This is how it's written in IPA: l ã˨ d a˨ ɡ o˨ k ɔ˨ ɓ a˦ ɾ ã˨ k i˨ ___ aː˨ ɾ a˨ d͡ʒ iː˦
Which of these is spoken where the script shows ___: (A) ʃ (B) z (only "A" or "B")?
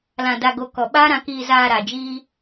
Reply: B